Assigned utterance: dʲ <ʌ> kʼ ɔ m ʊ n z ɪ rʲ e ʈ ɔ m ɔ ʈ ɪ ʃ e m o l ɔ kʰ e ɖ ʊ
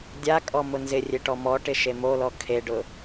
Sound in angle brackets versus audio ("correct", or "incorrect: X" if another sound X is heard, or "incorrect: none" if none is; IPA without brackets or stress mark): incorrect: a